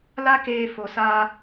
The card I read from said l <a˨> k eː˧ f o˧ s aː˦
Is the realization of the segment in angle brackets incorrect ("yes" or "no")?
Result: yes